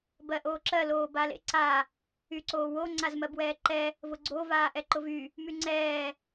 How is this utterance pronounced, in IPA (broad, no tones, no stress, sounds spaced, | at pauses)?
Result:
b ɜ ʔ oː ǁ ɜ l oː b a l ḛ ǀ a | y ǀ oː w o ŋ͡ǀ a z m ɜ b w ɛː ǃ ɛ | v ʊ ɡ͡ǀ o v aː ʔ ɛ ǃ ʊ v y | m y ŋ͡ǀ ɛː